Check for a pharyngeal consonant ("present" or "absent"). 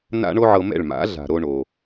present